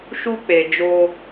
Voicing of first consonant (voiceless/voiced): voiceless